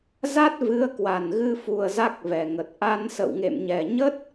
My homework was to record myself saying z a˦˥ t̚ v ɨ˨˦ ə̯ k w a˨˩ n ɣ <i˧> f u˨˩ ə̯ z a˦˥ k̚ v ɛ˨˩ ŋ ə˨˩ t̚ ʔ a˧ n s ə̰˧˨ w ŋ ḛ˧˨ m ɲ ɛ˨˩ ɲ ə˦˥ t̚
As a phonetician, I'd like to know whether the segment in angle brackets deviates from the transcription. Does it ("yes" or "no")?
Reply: yes